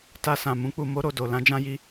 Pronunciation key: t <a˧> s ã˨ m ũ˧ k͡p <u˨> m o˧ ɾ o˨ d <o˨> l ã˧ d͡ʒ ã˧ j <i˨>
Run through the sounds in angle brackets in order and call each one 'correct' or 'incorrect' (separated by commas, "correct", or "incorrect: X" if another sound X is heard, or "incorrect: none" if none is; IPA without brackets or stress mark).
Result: correct, correct, correct, incorrect: i˧